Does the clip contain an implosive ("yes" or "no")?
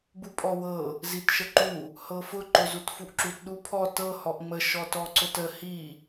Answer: yes